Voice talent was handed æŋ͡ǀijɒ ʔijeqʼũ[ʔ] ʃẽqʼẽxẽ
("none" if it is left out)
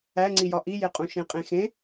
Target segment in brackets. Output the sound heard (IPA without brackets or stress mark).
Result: none